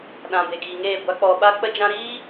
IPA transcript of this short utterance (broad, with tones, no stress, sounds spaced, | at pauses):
ɗ ã˨ b e˨ ɡ iː˨ ŋ eː˦˨ ɡʷ a˦ k͡p ɔ˧ ɓ a˦ k͡p ə˦ d͡ʒ ã˦ ɾ iː˦